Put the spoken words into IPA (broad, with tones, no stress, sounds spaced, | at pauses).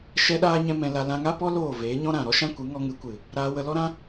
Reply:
ʃ ɛ˦ ɗ aː˦ ɲ ɛ̃˦ m ɛ̃˧ l a˧ l ã˧ ŋ a˦ p ɔ˦ l oː˦˨ v eː˨˦ ɲ ɔ̃˦ ɾ ã˨ ɾ ɔ˦ ʃ ã˦ kʷ ɨ˨˦ ŋ ɔ˧ ŋ ɨ˨˦ kʷ ɨ˨ | ɾ aː˧ w ə˧ l ɔ˦ ɾ ã˦